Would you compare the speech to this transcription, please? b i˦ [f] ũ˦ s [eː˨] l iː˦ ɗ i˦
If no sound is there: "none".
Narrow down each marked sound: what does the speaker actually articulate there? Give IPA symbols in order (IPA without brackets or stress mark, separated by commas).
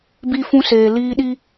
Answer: f, eː˨